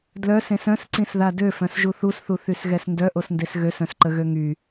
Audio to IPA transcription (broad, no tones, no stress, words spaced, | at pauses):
dlœsẽs œ̃sǀĩsða døfœ̃sʒu θusθuθysɣɛs ndœʔosndes ɣøsœ̃sǃəɣø ŋy